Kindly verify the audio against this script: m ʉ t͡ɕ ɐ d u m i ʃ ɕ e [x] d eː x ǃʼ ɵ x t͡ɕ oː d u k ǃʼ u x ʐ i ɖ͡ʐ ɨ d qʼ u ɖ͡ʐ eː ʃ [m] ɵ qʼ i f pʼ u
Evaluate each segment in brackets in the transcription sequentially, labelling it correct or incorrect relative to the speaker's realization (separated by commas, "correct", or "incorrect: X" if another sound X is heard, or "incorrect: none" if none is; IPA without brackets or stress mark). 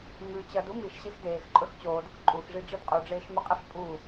correct, correct